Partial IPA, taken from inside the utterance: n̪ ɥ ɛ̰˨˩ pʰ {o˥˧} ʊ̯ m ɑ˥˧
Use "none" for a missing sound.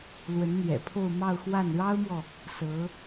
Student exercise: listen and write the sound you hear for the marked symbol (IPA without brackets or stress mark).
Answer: o˥˧